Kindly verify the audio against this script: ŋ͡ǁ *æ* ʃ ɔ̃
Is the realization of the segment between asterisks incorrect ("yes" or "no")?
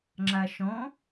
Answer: yes